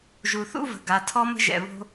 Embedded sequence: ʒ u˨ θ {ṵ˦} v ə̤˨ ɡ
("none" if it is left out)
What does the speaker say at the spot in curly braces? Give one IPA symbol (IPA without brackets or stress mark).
ṵ˦